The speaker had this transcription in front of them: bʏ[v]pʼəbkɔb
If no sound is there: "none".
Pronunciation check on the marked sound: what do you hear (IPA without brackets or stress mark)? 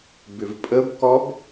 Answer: v